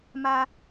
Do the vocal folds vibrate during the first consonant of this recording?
yes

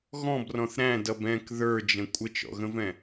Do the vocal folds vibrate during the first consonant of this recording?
yes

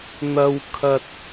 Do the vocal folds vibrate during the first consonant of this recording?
yes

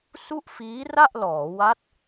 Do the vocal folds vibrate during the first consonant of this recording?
no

